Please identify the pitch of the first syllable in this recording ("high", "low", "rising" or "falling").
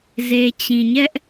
low